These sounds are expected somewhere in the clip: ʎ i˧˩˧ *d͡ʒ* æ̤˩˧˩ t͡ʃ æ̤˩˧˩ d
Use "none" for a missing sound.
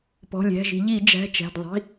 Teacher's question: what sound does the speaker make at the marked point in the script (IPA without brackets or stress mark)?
d͡ʒ